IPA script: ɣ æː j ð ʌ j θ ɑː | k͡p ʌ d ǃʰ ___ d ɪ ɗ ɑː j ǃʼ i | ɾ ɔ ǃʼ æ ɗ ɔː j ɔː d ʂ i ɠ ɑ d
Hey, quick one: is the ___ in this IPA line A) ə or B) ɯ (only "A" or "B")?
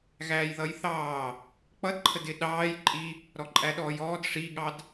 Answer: A